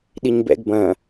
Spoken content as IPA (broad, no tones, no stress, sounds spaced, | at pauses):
ɗ i ɲ b ɛ̰ ɡ b ɐ̃